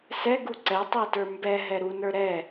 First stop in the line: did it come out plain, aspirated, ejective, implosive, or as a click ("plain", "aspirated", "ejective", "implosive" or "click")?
plain